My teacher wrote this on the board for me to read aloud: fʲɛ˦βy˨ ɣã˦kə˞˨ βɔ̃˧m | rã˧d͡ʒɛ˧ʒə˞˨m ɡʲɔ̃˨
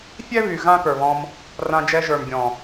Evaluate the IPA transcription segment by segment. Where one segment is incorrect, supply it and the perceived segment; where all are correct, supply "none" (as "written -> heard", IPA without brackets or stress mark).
none